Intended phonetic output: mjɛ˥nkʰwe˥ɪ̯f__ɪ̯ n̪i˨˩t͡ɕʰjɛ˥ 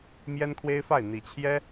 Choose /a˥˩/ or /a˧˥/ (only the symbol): a˥˩